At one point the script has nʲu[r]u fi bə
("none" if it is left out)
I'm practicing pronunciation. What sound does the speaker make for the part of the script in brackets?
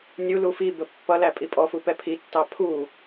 l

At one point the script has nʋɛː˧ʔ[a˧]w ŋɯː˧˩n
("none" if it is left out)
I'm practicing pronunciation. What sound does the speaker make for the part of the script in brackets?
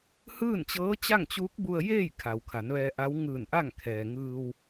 a˧˥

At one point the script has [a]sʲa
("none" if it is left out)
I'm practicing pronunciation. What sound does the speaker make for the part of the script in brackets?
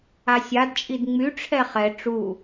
a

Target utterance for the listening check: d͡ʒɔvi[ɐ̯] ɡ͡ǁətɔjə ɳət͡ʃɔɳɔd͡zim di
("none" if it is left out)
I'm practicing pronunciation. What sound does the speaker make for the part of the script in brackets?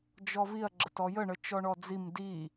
ɐ̯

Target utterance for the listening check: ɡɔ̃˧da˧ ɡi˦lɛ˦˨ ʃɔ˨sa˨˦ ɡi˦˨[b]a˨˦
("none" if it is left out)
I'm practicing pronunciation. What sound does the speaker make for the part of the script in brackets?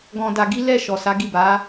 b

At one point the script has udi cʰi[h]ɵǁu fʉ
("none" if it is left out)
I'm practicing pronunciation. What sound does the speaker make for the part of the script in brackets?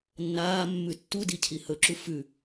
h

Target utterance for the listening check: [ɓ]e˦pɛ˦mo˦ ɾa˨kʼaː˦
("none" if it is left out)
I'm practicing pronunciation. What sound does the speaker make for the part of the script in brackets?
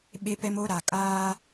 ɓ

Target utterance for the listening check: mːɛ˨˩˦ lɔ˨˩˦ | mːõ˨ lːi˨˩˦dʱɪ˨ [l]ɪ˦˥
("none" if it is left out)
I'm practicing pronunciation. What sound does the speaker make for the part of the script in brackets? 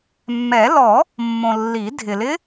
l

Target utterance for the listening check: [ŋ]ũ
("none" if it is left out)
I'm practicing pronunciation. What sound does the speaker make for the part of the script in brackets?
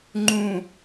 ŋ͡ǃ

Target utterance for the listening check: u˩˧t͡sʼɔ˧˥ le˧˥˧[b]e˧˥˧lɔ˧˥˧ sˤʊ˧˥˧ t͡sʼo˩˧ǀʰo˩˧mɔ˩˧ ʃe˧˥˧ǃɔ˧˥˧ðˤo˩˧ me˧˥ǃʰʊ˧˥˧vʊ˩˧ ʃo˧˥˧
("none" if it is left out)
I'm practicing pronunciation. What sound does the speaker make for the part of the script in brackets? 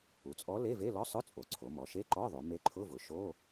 v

